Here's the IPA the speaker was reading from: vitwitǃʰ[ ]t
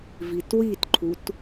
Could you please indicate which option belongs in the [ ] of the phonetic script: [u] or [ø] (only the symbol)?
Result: u